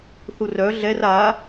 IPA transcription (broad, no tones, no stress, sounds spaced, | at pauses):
θ u r œ ɮ ɛ r a